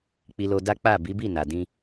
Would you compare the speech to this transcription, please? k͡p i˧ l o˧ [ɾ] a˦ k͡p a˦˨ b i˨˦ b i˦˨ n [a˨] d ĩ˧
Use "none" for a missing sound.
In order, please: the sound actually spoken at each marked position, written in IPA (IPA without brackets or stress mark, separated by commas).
d, a˨